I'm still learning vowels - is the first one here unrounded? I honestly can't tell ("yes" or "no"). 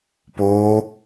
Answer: no